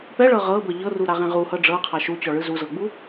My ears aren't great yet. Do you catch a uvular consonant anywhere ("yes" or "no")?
yes